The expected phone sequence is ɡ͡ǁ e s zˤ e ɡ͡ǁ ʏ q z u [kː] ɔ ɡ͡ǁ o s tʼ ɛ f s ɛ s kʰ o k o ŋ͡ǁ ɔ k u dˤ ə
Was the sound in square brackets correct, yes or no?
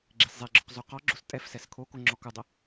no